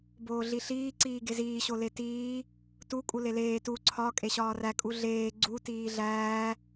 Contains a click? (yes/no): yes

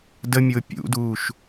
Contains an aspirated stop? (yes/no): no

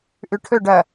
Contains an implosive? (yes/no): no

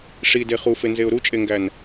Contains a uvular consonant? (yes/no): yes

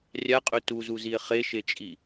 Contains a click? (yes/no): no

